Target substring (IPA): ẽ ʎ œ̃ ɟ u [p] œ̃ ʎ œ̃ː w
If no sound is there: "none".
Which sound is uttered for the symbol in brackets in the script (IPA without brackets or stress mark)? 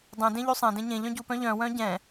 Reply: p